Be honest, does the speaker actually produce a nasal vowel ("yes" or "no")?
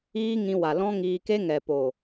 yes